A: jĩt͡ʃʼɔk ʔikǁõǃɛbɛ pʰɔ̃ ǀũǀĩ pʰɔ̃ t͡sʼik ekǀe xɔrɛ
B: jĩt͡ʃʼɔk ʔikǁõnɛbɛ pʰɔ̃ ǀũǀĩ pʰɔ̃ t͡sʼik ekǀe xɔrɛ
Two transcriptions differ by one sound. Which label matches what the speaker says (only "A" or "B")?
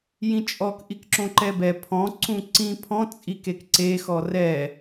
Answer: A